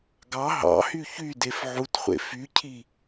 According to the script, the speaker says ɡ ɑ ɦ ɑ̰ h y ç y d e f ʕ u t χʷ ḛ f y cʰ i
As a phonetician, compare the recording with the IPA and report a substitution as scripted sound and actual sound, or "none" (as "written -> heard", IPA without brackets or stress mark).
none